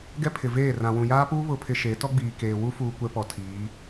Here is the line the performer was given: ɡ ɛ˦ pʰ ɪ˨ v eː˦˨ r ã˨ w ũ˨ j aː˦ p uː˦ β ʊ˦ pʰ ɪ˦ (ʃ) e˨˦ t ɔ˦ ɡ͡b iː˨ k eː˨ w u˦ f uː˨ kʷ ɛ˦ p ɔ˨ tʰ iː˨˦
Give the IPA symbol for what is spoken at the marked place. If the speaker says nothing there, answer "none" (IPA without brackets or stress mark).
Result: ʃ